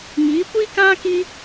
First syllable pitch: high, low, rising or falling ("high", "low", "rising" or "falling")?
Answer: rising